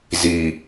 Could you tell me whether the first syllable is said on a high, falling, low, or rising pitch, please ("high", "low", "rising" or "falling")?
low